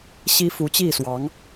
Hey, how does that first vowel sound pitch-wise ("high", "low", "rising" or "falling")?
high